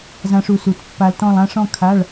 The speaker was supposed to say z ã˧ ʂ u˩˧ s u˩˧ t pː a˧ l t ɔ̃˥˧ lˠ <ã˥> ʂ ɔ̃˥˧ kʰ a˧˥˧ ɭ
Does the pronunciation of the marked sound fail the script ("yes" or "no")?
no